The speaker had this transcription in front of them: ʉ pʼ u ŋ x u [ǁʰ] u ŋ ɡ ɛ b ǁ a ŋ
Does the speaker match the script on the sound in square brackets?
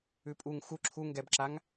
yes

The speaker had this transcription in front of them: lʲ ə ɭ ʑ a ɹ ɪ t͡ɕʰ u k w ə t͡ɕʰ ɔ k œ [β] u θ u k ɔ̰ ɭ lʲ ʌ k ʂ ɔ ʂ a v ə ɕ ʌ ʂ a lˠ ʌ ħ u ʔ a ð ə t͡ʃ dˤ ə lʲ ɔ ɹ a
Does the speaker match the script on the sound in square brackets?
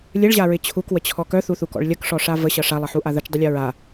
no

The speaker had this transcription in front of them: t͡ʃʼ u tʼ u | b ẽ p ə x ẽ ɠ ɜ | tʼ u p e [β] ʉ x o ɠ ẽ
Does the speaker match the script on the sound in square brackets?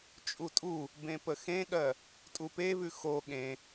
yes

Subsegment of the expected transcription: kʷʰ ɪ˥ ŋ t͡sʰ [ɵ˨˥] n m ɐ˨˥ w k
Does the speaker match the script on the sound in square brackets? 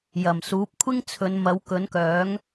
no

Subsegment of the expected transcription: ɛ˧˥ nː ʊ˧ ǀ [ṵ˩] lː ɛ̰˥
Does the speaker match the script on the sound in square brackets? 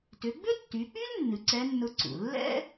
yes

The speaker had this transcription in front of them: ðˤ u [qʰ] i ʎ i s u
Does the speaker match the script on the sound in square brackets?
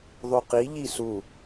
no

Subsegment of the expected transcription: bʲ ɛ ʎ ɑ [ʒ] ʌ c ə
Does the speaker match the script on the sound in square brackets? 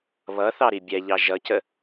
yes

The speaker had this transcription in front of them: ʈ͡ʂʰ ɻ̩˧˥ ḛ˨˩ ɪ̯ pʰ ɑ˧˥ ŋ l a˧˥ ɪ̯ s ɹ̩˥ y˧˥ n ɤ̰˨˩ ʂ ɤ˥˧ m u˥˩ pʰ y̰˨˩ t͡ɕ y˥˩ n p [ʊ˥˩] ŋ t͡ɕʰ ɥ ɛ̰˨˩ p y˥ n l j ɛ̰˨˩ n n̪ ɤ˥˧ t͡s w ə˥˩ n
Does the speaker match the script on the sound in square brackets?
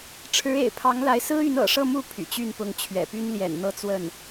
no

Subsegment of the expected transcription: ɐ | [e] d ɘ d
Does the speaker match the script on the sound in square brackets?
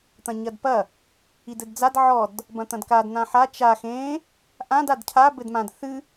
no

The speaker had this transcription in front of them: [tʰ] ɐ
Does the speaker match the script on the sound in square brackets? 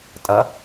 no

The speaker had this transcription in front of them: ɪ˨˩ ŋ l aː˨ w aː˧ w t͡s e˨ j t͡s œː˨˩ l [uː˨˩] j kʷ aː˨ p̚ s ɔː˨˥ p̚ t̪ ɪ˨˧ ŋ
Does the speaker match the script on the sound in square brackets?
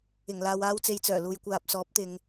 no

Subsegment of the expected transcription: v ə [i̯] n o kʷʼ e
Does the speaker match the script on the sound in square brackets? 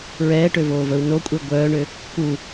no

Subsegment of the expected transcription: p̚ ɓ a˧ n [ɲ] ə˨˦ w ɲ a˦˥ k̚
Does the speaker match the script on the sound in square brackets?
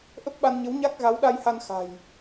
yes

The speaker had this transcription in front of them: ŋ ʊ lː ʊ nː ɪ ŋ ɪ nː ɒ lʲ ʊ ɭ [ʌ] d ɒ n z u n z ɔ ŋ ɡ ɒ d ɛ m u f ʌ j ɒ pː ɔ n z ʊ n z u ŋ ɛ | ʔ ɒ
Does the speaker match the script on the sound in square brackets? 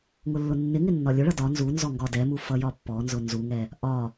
yes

